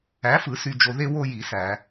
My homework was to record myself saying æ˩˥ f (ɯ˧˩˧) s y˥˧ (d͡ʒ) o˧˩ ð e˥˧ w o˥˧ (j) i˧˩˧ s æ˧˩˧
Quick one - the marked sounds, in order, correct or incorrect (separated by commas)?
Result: correct, correct, correct